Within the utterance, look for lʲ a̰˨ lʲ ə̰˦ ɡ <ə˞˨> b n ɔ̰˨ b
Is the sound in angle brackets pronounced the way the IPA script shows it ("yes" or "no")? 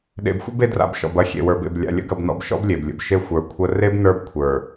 no